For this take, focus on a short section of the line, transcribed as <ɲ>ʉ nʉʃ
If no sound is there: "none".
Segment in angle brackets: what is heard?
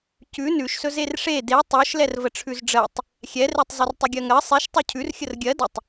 c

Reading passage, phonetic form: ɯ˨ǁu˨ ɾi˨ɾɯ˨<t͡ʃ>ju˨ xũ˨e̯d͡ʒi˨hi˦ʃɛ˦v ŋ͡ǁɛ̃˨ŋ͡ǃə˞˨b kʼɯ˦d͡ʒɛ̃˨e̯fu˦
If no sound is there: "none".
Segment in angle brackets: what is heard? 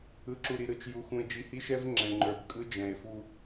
t͡ʃ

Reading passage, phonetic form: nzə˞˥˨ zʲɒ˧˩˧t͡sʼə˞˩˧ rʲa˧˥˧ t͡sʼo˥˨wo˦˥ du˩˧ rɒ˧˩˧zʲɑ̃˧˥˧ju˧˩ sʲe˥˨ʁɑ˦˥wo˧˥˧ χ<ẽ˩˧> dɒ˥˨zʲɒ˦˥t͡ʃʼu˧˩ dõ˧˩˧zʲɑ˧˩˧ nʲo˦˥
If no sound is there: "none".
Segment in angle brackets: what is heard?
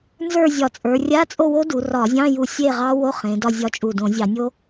ẽ˩˧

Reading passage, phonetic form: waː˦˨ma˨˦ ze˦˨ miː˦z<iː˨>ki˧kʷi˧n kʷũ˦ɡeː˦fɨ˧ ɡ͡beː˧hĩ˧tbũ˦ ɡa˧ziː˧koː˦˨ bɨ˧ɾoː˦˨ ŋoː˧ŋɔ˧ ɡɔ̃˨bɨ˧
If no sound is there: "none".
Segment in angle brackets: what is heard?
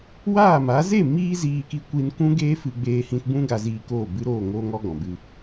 iː˧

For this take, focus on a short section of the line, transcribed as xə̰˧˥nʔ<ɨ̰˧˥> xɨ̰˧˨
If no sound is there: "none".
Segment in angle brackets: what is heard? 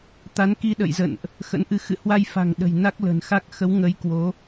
ɨ˧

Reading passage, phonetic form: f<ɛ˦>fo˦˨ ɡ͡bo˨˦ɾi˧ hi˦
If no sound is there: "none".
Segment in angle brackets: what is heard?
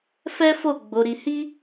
ɛ˦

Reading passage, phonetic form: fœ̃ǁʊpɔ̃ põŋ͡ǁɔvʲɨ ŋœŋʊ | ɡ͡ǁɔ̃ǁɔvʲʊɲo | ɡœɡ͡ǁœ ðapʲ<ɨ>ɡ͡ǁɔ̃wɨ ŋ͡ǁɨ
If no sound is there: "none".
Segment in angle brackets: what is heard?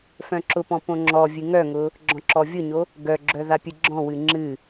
ɨ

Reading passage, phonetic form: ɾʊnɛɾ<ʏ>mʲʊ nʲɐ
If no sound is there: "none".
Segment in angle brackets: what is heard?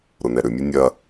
ʏ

